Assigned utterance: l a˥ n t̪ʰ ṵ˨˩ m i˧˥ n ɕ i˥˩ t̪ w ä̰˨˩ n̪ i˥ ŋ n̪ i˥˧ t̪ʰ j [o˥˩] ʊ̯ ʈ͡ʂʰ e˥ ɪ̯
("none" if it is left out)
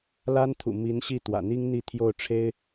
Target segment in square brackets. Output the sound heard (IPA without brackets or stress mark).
o˥˩